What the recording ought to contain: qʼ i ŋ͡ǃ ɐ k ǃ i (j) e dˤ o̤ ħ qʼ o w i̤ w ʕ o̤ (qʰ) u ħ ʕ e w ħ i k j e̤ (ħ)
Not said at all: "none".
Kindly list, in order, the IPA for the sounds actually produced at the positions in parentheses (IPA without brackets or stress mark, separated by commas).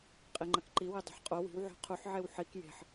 w, qʰ, ħ